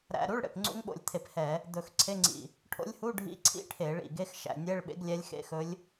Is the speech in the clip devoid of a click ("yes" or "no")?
no